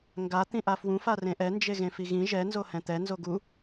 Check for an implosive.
absent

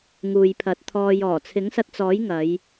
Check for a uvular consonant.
absent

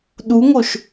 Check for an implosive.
present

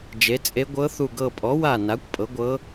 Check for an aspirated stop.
absent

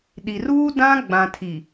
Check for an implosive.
present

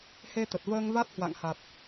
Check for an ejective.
absent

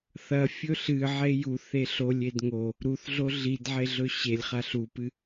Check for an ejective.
absent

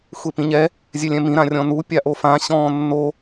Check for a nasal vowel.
present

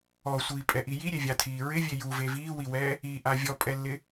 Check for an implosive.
absent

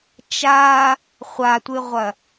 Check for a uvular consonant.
present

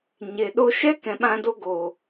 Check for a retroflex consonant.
absent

